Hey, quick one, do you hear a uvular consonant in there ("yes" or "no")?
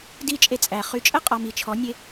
yes